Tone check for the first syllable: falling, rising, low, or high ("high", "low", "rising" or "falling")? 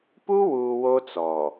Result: high